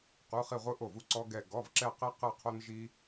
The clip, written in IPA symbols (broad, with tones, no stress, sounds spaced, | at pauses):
q u˧˥˧ χ i˥˧ ʁʷ ɯ˥ ʔ o˥˩ v u˥ ǀ ɔ˥ ɡ ɛ˥˧ ɡ ɔ˧˥˧ v ǁ ɛ˥˧ q e˥ q ɯ˥˧ qʰ o˥ n ʒ i˥